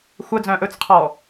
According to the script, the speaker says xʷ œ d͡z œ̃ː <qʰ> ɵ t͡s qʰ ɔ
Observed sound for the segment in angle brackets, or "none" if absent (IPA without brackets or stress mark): ʔ